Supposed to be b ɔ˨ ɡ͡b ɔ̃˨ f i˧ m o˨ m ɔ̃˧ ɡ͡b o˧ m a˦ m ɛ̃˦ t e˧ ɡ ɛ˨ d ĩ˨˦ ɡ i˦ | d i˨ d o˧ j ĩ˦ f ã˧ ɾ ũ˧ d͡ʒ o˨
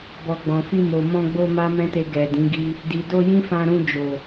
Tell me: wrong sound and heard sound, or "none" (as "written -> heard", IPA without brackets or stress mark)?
none